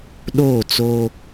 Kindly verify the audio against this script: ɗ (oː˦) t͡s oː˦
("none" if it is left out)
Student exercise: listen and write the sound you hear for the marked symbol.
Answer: oː˦˨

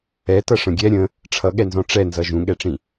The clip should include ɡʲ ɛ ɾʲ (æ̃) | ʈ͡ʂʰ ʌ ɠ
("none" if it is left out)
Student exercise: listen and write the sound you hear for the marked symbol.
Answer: ə̃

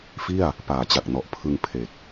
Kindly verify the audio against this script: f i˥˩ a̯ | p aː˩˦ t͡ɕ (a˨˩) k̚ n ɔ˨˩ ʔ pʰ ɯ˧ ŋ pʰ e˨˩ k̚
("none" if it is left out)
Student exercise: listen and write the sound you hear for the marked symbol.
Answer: a˨˩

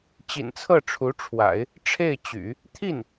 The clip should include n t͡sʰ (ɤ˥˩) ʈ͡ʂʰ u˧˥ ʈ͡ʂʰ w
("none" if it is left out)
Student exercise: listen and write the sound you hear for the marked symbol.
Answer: ɤ˥˩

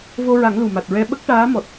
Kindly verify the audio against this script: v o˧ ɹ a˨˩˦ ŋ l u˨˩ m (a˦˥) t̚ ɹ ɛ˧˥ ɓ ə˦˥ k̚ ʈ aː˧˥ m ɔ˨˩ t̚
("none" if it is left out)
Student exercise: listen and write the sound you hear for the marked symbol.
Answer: a˨˩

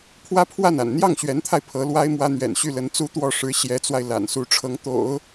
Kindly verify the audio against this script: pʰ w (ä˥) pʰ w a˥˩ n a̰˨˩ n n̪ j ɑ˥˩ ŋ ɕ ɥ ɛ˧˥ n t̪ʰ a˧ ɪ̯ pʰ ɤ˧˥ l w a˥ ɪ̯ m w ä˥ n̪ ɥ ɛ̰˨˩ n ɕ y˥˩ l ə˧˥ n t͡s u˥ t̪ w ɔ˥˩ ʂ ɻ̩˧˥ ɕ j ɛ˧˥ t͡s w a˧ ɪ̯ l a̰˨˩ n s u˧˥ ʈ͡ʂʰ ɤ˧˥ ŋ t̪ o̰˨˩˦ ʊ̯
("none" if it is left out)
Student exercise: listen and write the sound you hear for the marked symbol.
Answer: ä˥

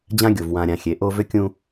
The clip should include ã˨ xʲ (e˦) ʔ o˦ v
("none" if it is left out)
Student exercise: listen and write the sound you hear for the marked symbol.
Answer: e˨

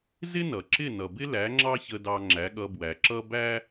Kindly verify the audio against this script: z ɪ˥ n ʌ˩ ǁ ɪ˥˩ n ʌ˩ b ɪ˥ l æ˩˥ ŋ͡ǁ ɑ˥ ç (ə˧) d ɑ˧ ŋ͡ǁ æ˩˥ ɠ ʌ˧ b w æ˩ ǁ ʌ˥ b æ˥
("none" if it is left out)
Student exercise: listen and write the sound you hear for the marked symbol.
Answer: ə˧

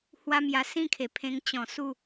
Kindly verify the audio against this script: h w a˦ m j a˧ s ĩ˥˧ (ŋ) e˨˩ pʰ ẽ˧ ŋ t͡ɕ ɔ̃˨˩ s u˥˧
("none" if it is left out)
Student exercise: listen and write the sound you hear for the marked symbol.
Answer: kʰ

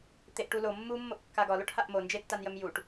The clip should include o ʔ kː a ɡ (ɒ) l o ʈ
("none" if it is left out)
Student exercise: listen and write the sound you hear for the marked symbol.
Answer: ɒ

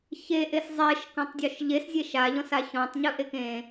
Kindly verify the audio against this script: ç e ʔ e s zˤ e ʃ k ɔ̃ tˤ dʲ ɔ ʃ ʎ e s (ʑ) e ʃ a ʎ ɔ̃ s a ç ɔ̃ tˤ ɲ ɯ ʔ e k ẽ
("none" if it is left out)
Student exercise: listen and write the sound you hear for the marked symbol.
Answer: zʲ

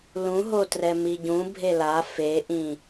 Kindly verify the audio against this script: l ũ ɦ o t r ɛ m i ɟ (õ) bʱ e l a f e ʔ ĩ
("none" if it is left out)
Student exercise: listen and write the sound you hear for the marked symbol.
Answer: ũ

